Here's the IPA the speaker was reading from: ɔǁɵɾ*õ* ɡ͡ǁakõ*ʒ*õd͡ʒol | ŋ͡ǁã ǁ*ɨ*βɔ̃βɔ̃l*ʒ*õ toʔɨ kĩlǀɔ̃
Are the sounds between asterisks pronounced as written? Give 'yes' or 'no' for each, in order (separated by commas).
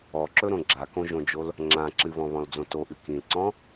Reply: yes, yes, yes, no